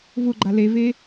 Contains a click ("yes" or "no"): yes